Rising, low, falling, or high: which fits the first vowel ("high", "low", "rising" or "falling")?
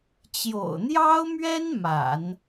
low